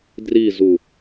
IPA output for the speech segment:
d r i z u

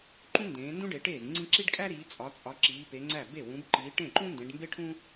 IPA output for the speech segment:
ǃ ũ˥ n d ẽː˨˦ n d ũ˥ ɖ e˨˦ ʈ eː˥˩ z ŋ͡ǀ ĩ˥ ǁ i˥ ɖ kʼ æ˥ ɾ iː˨˦ t͡sʼ ɒ˨˦ t͡sʼ ɒ˨˦ ǁ iː˨˦ p e˨˦ ŋ͡ǀ æ˥˩ b e˥˩ w ũ˨˦ b ǃ iː˨˦ ʈ ẽ˥˩ ǃ ũ˥ n d ẽ˨˦ ɖ m b e˥ ʈʰ ũ˥

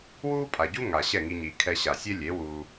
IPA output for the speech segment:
w uː˦ pʼ a˨ ɟ u˦ ŋ a˨ ɕ ɛ˦˨ ŋ i˧ ɲ iː˨ kʰ ɛ˧ ɕ a˨ sʲ e˦ lʲ e˨˦ w uː˧

